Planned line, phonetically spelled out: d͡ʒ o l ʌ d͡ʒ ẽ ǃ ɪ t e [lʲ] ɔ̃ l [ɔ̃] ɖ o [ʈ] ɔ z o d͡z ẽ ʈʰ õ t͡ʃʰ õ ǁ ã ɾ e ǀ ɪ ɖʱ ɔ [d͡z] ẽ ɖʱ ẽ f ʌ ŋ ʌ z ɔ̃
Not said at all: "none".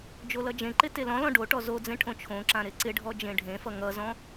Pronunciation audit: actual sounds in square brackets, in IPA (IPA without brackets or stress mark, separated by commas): l, ɔ̃, ʈ, d͡ʒ